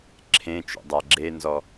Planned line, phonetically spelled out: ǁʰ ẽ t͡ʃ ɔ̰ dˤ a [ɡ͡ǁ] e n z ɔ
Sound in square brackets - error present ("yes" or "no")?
no